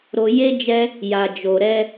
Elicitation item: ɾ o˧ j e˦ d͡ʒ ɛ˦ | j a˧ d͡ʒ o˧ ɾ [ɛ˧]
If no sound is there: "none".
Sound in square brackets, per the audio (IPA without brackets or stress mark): ɛ˦